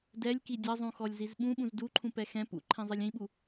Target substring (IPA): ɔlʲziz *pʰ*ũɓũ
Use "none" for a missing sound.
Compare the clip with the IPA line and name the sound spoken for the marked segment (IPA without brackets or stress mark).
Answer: ɓ